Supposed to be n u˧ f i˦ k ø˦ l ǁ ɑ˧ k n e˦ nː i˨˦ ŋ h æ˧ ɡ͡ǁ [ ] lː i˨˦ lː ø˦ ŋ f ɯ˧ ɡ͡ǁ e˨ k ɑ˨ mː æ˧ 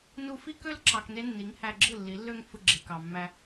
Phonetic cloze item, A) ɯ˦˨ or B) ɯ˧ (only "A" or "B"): A